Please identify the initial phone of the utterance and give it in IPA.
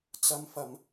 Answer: t͡s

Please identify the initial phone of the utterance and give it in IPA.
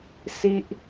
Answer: s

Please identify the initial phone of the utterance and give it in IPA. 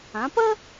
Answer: ã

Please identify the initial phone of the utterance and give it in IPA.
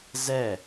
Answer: z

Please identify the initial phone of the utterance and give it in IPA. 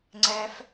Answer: ŋ͡ǀ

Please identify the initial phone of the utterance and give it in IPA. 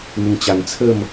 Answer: n̪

